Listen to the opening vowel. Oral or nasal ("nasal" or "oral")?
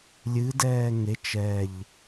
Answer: oral